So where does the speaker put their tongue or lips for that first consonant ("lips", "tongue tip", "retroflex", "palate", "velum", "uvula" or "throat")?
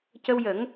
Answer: palate